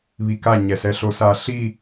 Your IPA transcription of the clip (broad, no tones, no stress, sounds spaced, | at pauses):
β i k a ɲ ɛ s ɛ ɬ o s a ɬ i